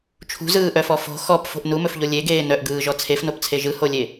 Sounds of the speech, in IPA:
t͡ʃʰ ṳ z ɯː ʔ œ f ɔ f o̤ x ɔ p f o̤ ʔ n u m ɵ f ʎ o lʲ e ɡ eː n œ ʔ ɡ ɯː ʒ ɔ t͡sʰ e f n o p t͡sʰ e ʒ ɯ h o lʲ e

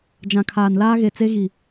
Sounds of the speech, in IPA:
d͡ʒ ã˨ kʰ aː˨ n l aː˦ ɣ e˨ t͡s e˦ ɣ i˨

